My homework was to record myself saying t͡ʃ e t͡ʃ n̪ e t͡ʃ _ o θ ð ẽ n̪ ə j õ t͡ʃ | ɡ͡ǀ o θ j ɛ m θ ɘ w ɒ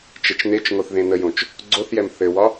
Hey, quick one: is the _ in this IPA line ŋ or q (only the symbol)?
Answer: ŋ